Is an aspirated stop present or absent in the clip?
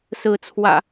present